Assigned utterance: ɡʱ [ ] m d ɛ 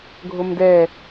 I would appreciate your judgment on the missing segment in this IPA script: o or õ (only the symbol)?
o